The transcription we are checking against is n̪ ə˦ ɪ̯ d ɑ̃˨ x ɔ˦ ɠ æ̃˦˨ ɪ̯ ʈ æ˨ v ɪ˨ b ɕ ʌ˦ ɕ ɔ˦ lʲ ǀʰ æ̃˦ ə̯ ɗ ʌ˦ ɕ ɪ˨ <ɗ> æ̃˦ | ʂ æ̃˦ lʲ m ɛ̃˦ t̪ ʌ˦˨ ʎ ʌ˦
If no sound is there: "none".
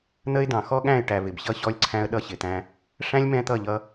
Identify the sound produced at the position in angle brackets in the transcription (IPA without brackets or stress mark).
t̪